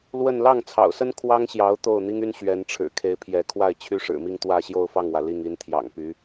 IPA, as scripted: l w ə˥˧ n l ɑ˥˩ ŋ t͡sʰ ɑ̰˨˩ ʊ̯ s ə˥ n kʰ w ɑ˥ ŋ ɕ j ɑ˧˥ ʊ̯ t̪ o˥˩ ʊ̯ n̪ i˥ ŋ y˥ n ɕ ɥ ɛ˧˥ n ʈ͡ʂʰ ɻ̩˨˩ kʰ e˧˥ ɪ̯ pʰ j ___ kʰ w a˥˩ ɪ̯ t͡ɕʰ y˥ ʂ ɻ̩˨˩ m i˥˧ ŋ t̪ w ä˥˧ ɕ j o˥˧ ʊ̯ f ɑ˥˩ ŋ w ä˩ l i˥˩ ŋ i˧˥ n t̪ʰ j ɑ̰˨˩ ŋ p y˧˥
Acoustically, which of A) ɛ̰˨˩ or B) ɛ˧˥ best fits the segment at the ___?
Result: B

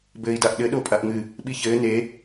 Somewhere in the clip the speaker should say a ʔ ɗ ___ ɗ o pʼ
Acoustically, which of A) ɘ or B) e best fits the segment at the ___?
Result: A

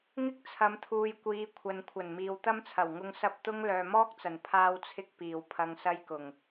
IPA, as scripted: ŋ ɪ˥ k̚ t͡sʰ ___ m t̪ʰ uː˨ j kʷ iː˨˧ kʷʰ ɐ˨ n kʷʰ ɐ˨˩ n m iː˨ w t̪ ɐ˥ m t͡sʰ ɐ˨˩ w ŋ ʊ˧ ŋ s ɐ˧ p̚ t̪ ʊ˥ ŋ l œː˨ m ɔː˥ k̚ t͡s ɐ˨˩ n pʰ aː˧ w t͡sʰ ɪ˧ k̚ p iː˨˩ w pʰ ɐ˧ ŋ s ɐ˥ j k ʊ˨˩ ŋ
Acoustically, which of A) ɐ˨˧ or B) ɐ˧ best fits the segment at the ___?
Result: A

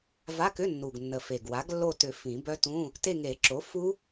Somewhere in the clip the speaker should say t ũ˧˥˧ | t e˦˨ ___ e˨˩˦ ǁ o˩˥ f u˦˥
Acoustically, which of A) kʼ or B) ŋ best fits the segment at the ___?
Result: B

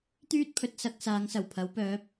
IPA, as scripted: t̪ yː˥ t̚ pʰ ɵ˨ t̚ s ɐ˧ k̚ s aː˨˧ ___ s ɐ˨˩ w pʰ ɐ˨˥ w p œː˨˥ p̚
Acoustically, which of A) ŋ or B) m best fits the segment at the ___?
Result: A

